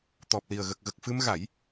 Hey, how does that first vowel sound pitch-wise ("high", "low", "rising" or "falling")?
low